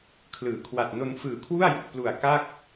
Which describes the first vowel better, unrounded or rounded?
unrounded